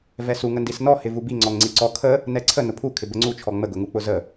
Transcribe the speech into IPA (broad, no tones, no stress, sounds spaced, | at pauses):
v ɛ s u ŋ ə n d i s n ɔ h ɪ v u b i ŋ͡ǀ ɔ ŋ ŋ͡ǀ i ǀ ɔ kʰ ə | n ɛ ǀʰ ə n ʊ pʰ u kʰ ɪ b ə ŋ͡ǀ u t͡ʃʰ ɔ ŋ͡m ə ɡ ʊ ŋ u k͡p ʊ z ə